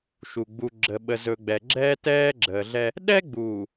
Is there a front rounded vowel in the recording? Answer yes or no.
no